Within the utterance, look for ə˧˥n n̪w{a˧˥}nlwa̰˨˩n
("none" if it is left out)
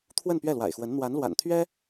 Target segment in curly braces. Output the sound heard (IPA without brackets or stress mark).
a˧˥